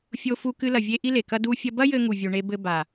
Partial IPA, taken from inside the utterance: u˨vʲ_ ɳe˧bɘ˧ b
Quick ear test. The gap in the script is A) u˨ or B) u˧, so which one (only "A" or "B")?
A